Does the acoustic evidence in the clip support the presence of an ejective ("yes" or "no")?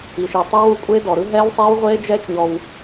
yes